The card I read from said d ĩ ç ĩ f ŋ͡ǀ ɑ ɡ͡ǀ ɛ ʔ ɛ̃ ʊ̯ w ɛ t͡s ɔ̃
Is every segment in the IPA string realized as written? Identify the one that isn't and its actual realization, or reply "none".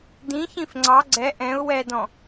t͡s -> d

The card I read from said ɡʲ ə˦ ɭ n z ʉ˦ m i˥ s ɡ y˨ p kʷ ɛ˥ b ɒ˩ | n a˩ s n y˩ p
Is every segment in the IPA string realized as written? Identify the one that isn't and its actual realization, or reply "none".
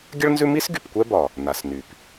none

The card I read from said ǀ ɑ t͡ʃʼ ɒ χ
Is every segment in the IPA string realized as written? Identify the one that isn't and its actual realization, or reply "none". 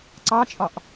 χ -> ʔ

